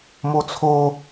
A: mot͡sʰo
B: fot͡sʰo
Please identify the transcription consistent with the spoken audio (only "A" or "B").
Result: A